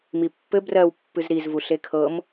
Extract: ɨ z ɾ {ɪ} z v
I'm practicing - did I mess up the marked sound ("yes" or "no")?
yes